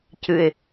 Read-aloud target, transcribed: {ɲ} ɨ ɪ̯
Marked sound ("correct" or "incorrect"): incorrect